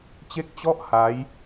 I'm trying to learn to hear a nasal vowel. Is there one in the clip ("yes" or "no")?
no